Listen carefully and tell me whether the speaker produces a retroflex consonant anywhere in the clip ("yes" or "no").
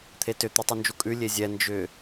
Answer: no